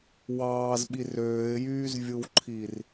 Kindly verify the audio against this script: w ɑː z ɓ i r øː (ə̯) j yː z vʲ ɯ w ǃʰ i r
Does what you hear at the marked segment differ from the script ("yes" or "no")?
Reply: yes